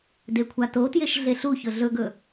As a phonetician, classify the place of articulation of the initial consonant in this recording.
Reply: alveolar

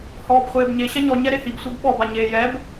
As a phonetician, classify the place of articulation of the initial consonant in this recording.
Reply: glottal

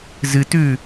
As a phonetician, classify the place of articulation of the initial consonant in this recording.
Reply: alveolar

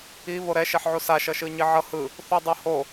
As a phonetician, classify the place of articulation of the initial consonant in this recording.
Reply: labial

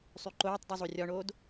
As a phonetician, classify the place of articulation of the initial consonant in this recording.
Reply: alveolar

